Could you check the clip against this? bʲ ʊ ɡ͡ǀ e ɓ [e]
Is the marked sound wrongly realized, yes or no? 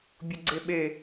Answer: no